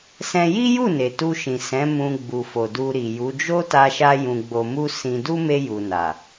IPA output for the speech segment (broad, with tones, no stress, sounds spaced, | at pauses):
s ɛ̃˧ j i˦ j u˦˨ n e˨ t u˧ ʃ ĩ˨ s ɛ̃˨˦ m ũ˧ ɡ͡b u˨ f o˨ d u˧ ɾ i˨ j u˨˦ d͡ʒ o˦ t a˧ ʃ a˧ j ũ˨ ɡ͡b o˨ m u˧ s ĩ˧ d u˦ m e˧ j u˨ n a˨